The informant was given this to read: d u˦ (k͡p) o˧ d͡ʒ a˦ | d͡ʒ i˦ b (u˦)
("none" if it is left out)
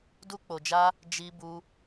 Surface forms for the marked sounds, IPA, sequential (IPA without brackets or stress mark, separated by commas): k͡p, u˦